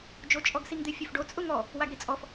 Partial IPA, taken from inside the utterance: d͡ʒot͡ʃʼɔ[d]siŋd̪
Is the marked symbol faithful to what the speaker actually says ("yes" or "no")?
no